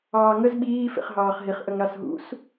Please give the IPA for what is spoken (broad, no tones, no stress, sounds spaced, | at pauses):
ɑː ŋ ə z ɓ iː f ḛ χ ɦ ɑː χ ɦ i χ ʔ ə ŋ ɾ ɑ s ɦ ṵ s